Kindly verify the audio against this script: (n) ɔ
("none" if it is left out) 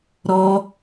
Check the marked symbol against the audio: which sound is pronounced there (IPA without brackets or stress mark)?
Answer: ɾ